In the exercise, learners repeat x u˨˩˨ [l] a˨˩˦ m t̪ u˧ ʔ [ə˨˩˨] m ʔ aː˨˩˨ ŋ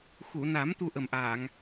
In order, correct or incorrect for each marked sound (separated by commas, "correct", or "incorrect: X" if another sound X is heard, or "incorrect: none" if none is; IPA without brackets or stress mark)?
incorrect: n, incorrect: ə˨˩